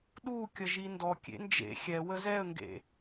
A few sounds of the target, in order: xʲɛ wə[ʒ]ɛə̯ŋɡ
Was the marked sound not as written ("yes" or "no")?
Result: yes